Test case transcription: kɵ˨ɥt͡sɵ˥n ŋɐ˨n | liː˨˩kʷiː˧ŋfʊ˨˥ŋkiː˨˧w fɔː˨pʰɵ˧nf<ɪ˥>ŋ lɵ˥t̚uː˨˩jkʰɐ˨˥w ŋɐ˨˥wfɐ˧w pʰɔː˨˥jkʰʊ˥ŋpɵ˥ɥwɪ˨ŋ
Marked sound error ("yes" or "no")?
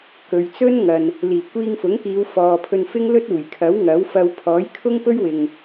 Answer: no